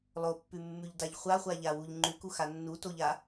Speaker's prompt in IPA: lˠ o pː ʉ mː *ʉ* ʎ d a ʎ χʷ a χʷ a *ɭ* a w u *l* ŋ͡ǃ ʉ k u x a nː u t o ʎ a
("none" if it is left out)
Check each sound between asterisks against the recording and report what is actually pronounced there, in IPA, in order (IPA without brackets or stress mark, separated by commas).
ʉ, ʎ, ʎ